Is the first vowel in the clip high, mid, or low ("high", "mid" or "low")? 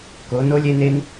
mid